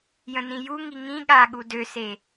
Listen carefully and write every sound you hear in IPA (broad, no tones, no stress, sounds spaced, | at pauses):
j ə̃ n ĩ j u ŋ i ŋ ĩ ɠ a ɠ u d ø s e